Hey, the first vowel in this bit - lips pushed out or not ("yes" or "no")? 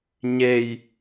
no